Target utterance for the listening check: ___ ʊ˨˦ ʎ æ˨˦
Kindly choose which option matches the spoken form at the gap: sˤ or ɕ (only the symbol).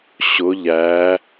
ɕ